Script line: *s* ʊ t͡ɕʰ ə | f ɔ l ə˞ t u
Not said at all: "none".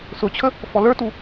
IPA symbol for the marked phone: s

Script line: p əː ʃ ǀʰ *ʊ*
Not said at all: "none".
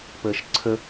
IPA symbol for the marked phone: ə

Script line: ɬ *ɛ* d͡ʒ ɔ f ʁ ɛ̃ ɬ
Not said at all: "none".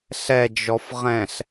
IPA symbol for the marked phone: ɛ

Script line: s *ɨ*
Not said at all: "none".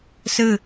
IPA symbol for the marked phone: ɨ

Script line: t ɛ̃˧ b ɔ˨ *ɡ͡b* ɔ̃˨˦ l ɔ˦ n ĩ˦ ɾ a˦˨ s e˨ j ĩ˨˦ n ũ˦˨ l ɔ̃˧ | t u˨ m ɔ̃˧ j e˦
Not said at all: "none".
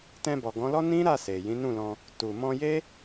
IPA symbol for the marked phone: ɡ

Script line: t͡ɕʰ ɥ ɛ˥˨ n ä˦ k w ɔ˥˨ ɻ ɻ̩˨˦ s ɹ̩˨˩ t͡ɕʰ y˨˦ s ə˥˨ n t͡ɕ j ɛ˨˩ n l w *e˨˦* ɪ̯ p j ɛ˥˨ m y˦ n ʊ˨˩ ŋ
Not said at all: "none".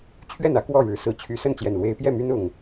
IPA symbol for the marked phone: e˨˦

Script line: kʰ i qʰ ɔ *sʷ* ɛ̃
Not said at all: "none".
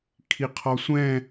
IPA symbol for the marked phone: sʷ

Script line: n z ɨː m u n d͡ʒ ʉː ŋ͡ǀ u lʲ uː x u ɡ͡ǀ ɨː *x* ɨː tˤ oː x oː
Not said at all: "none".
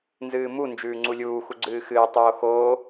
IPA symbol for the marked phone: x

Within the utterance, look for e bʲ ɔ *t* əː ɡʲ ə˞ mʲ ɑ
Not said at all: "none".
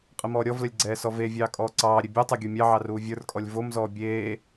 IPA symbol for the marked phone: tˤ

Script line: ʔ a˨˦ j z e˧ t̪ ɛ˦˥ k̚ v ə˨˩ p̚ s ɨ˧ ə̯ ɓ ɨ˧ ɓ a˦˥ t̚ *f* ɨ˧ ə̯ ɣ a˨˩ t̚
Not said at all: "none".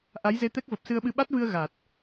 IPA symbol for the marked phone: v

